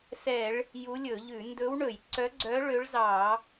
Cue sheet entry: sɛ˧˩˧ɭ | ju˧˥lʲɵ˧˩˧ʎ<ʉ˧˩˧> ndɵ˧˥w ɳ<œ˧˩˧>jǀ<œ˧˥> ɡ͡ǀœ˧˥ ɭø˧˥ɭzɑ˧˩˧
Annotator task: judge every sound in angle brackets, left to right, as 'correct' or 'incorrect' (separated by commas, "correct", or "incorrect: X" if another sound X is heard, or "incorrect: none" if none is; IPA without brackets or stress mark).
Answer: correct, incorrect: ɵ˧˩˧, correct